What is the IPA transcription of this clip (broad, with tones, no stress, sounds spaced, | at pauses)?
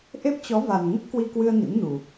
ʔ e˦˥ p̚ t͡ɕ ɔ˨˦ v a˨˩ n ŋ ə˦˥ p̚ k w i˧ k w ɨ˧ ə̯ n ḭ˧˥ m n u˨˩